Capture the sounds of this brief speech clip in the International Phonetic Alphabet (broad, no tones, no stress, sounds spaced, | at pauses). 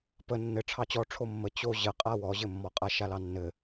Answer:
p ə nː ɘ ʈ͡ʂʰ ɑ t͡ɕ ɔ ʈ͡ʂʰ o mː ə t͡ɕ o ʑ ə qʼ a w ɔ ʑ ɘ mː ɔ qʼ a ʃ a l ɑ nː ɘ